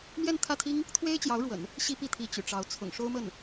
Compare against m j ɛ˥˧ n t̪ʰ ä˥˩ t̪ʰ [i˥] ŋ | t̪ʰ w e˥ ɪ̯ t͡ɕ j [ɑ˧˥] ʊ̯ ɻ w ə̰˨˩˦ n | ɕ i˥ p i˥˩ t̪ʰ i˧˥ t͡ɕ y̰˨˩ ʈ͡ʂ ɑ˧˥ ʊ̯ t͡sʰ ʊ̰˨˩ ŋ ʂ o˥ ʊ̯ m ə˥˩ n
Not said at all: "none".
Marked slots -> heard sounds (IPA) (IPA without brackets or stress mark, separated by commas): i˥, ɑ˧˥